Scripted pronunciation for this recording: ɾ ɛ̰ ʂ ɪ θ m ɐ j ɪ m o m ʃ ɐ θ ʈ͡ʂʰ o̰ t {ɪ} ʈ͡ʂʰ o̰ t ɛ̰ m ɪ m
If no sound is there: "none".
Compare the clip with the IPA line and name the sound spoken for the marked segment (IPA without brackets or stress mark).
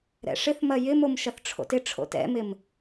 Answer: ɪ